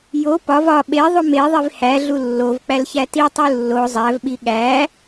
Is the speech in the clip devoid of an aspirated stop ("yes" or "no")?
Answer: yes